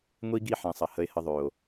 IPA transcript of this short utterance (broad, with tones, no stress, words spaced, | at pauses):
ŋʷi˧ɡi˧ ħẽ˨sˤɐ˨ hə˧e̯hə˧ðˤø˨o̯